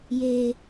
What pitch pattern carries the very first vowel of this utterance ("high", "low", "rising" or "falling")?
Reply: low